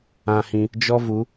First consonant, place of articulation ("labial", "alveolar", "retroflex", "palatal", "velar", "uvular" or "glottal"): glottal